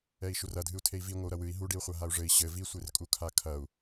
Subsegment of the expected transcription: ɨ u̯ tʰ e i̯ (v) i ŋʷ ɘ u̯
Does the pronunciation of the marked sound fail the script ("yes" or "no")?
no